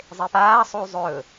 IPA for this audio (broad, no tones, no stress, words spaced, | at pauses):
zˤepaːsˤuː zˤɵː